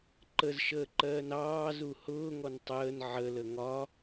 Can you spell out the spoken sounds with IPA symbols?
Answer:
ǃ ə z ʃ əː ǃ ɜː n ɑː z u h ʊː ŋ ɔ n tˤ əː n ʕ ə l ə ŋ ɒ

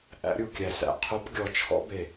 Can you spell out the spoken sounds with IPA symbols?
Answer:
ʔ æ̰˧˥ ɾʲ u˧˩ kʲ æ˧˩ s æ̰˧˩ qʰ o˧˥ p ɡʲ ɔ˧˩ t͡ʃʰ ɔ̰˧˥ b e˧˩

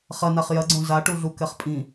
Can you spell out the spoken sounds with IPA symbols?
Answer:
χ ɐ n a χ j ɐ ɡ͡ǀ õ z a ʈ u ɮ u k ɛ χ pʼ ĩ

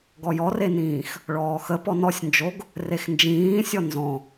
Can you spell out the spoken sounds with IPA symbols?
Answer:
ɡ ɔ j ɔ r e n ĩː x | ɭ ɔː x ə p ɔ n ɔ sʲ n d͡ʒ o ɡ | r e x n d͡ʒ ĩː sʲ ɔ n z ɔ̃

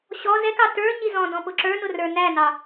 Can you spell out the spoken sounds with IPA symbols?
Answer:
ɕ ɔ z ɛ k ɑ t ə˞ ɲ i z ɔ̃ d ɔ̃ p ʊ ǁ ə˞ n ʊ r ə˞ n æ n ɑ

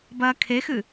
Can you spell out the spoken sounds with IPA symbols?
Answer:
b ɐː kʰ e x ɨ

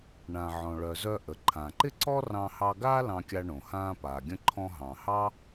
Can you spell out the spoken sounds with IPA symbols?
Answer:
ɳ ã˩ ʕ ɔ̃˩ ɭ œ˩ z œ˧ ʔ ə˩ ǃʰ ã˩ ǃ ɪ˥ ǀ ɔ˥ r ɑ̃˧ h ɑ˧ ɡ aː˥ l ɑ̃˧ kʲ a˧ ɳ õ˩ h ãː˧ p aː˩ ɡʲ ə̃˧ ǃʰ ɔ̃˧ ɦ ɑ̃˩ h ɑ˥

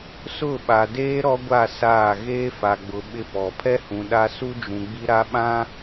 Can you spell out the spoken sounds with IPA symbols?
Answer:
s ʊ˦˨ ɓ a˨ d eː˦ ɾ ɔ˦ ɡʷ a˦˨ s aː˦˨ ɣ eː˦ f a˨ ɡ͡b ʊ˨ ɓ ɪ˦ p ɔ˨ pʰ ɛ˦ h ũ˨ ɗ a˦ s u˦ d͡ʒ ũ˨ ɡ͡b i˦ ɾ a˦ ɓ ã˦

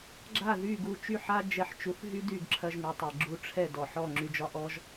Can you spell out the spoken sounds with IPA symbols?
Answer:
ɡ͡ǁ a˥˩ ð y˥˩ ɡ u˧ t͡ʃ y˥˩ ħ a˥ d͡ʒ ɛ˧ ħ t͡ʃ u˩˥ θ ɦ y˥ d y˥˩ ɡ ǁʰ ɐ˧ ʒ ŋ u˩ tˤ ɛ˩ ɡ͡ǁ u˧ ʈ͡ʂʰ ɛ˥˩ d ɔ˩ ħ ɔ˥˩ ŋ͡ǁ y˧ d͡ʒ ɒ˥ ʔ ɔ˥ ʒ

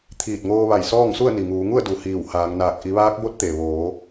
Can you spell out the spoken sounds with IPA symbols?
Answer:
t̪ʰ iː˧˩ t̚ ŋ oː˧ ʋ a˧˩ j s ɔː˥˨ ŋ s u˥˨ ə̯ n i˩ ŋ uː˩˧ ŋ u˥˨ ə̯ d u˩˧ h iː˧˩ w h aː˩˧ ŋ n aː˧˩ k̚ ʔ i˩˧ ʋ aː˧˥ k̚ b o˧˥ t̚ t̪ e˩ ʋ oː˩˧

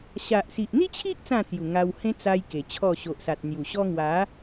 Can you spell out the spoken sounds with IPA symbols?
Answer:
ɕ a˨ ʔ s i˨ ʔ n̪ i˦ t͡ɕʰ i˦ ʔ t͡s ã˥˧ t͡s j u˨˩ ŋ a˧ w h ẽ˦ t͡s a˧ j k e˨˩ t͡ɕʰ ɔ˥˧ ɕ o˨ ʔ s a˨ t̚ n̪ j u˨˩ ɕ ɔ˦ ŋ w a˨˦

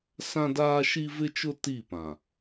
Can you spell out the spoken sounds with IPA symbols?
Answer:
s ã˦ d aː˦ ʃ i˦ v ɪ˦ t͡ʃ ʊ˦ t i˦˨ p ã˨

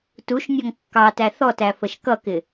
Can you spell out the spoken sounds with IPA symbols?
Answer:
t u ʃ nʲ ɔ ŋ kː ɑ t æ θ ɔ t æ f ə ʃ k ʌ k ɪ

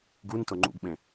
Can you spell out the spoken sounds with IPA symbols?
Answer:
ɡ u n t ʊ ŋ͡ǃ ṵ ɡ ɓ ẽ

